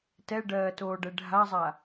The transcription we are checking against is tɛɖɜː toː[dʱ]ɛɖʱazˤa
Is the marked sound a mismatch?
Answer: yes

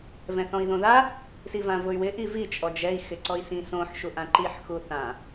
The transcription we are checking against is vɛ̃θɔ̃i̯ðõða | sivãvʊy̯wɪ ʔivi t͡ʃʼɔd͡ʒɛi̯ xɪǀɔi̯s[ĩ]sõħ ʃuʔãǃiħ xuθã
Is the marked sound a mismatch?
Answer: no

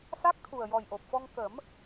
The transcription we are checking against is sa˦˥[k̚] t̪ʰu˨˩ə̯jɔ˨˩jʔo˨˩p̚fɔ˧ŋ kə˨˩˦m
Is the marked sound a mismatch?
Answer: no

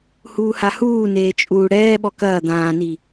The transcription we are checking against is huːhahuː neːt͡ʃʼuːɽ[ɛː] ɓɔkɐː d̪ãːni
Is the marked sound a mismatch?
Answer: no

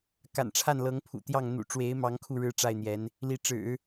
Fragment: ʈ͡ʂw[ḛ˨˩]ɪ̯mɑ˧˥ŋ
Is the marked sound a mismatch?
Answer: yes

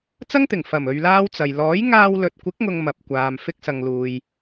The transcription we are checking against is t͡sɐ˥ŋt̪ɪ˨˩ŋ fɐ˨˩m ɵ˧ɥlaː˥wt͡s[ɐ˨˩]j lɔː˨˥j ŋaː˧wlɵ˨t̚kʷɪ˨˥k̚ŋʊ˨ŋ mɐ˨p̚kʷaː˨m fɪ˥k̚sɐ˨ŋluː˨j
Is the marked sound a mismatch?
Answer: yes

